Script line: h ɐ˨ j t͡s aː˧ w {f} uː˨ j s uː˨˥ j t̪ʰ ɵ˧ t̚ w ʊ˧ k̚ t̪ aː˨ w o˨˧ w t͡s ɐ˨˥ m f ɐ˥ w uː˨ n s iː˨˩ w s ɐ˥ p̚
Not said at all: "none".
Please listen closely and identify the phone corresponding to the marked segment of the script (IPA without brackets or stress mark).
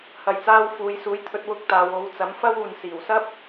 f